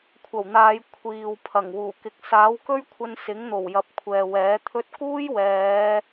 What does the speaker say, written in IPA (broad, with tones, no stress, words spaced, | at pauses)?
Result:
kʷʰɐ˨˩wn̪aː˨˧j kʷʰiː˨w pʰɐ˨˩ŋwuː˨˩ kɪ˨k̚saː˨˥wkɵ˥ɥkʷʰɐ˧n sɪ˨˥ŋn̪o˨˩wjɐ˨˥p̚ kʷʰɛː˨wɛː˨˥t̪ʰɵ˥t̚ kuː˥jwɛː˨˧